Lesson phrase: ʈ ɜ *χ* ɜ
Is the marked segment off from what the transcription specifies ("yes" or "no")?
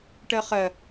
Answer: no